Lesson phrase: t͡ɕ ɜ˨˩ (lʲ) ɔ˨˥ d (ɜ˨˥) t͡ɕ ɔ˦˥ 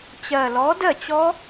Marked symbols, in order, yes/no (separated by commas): no, no